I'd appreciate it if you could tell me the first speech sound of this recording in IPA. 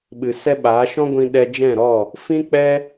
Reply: ɓ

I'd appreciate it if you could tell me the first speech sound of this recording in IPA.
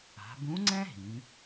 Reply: a̤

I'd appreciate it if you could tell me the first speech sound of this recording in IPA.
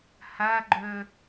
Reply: h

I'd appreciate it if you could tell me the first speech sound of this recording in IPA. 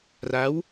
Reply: r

